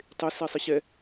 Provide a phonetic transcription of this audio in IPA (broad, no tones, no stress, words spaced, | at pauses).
tˤesi sˤɨɕɛ